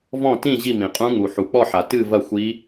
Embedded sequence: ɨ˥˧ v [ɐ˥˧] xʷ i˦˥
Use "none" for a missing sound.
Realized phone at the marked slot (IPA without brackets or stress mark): ɐ˥˧